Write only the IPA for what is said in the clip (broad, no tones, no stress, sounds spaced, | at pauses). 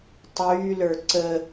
tˤ yː l ə˞ ǀ ə